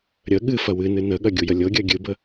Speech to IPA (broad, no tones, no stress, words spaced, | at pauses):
ɾʲə ɠɨfɐ wɨnɨ nəɠɐ ɡʲujəlʲɤɡʲɜ ɡʲɨbə